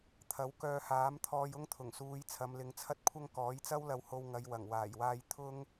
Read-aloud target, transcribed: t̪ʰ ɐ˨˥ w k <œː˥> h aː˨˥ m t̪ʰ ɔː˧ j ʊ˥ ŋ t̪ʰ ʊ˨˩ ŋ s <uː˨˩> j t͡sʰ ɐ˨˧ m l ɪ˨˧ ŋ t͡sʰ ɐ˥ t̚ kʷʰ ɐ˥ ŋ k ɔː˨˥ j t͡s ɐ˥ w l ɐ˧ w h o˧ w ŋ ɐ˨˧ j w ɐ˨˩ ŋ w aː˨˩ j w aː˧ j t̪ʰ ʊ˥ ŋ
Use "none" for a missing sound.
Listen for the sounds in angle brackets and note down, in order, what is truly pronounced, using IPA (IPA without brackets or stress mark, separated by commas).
œː˧, uː˨˧